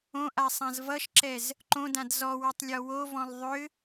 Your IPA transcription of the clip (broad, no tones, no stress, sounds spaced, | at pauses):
õ ʔ a sˤ ã z v ʌ ʃ ǁ ɛ z | ǃ õ d ã d z ɔ w ɔ tˤ lʲ ɔ w o v ɔ̃ lˠ ðˤ ʏ